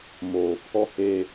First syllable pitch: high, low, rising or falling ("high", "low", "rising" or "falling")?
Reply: low